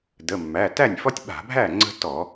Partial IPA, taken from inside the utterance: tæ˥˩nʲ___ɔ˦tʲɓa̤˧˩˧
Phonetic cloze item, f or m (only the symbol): f